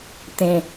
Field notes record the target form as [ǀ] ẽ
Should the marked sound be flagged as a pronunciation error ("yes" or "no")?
yes